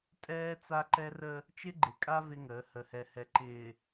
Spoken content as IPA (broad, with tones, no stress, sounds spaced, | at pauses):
tʼ ɛː˦ t͡s a˦ ǃ ɛ˦ r ə˦ | t͡ʃ ɪ˦ ɡ͡ǃ ɪ˨ kʼ a˦ v ɪ˦ ŋ əː˨˦ h ə˨ h ɛ˨ h ɛ˨ ǃ ɪː˨